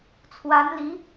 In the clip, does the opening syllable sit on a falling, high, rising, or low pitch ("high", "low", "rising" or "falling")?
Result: rising